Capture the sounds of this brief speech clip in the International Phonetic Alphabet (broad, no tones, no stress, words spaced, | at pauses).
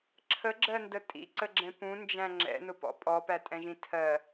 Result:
ǁʰəɡ͡ǁɜndə tʼḭǀəɡ͡ǁɛ̃ pũnd͡ʒæ̃ ŋ͡ǁɛ̰nʊpɔ̰ pʼɔpætʼɛ̃ʒĩ tʰɜ